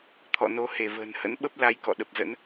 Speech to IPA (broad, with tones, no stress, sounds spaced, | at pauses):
t̪ʰ ɔ̰˧˨ n o˨˦ h e˧˩ v ə̤ː˨˩ n h ə̰˧˥ n ɓ ə˦˥ p̚ l a˨˦ j k ɔ̰˧˨ ɗ ə˨˩ p̚ z ə̰˧˥ n